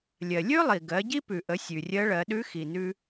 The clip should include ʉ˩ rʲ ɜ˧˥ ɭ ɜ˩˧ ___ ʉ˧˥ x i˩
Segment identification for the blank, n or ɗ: ɗ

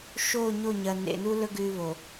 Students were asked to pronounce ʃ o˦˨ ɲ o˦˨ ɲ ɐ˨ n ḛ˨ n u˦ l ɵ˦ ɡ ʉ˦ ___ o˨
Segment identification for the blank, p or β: β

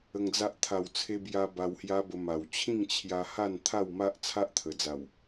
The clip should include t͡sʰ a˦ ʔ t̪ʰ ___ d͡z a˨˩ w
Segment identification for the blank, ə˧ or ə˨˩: ə˨˩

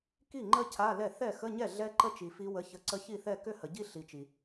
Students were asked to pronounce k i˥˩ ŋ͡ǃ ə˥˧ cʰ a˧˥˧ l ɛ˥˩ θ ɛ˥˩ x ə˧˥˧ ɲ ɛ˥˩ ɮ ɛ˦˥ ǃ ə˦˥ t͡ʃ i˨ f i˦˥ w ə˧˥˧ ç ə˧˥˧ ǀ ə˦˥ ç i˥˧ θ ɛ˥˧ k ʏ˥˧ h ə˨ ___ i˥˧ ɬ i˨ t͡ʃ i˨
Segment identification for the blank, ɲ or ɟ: ɟ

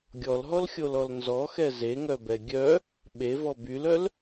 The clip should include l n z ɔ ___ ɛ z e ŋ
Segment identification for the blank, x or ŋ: x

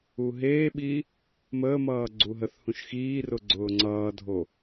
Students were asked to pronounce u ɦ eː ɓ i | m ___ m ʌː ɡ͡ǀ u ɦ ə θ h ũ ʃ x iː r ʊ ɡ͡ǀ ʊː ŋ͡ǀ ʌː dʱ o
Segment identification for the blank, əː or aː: əː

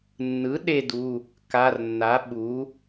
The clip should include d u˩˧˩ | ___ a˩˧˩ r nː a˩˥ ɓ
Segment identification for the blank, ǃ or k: k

